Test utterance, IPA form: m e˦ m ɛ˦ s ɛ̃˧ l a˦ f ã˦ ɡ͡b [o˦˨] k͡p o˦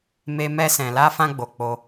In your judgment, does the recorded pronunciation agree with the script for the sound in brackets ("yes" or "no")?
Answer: no